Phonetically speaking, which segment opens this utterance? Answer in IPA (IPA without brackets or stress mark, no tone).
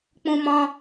k͡p